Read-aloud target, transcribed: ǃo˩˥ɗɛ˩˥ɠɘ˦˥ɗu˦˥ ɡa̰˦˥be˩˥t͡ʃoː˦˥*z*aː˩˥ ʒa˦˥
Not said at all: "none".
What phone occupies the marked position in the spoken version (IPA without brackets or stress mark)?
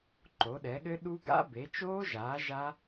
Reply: ʒ